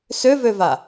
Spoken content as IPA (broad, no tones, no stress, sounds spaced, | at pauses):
s ø v ø v a